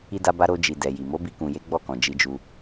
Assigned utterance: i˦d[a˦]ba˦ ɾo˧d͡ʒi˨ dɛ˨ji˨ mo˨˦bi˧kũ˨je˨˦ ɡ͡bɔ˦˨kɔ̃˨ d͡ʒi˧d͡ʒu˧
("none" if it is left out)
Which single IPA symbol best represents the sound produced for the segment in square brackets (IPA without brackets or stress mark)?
a˦